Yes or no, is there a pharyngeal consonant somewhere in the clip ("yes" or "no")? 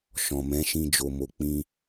no